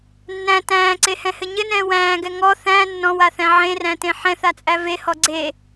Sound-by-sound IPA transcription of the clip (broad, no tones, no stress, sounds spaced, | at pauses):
nː æ̃ t æ̃ː ǀ e h ɛ̃ h ɘ ɲ ɘ n ɛ̃ː w æ̃ː ɡ ɛ ŋ ɔ θ æ̃ nː ɔ̃ w a θ æ̃ ʕ ẽ r æ̃ t ẽ ħ ɛ̃ θ a t͡sʼ æ v e h ɔ ɡ͡ǀ e